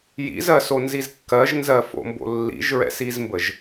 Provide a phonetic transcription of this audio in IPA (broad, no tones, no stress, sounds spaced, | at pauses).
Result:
j ḭ z ɜ s o n z i z kː ɜ ʒ n z ɜ f o̰ m b o̰ lː ḭ ʒ ɹ ɛ̰ s i z m b ə ʒ